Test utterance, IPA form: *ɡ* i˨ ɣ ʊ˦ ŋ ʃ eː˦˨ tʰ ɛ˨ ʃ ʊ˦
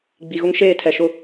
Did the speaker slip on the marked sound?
yes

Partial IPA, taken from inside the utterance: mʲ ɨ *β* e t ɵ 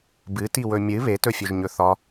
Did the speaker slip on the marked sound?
no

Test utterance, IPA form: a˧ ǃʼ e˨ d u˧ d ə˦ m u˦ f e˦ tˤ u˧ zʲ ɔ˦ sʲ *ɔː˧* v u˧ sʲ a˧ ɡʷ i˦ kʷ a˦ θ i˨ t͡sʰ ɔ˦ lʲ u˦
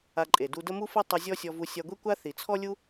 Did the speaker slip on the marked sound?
yes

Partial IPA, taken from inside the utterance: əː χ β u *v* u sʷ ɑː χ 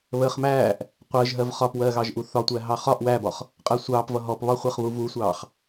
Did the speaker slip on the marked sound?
no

